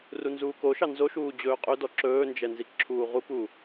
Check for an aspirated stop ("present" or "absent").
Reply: present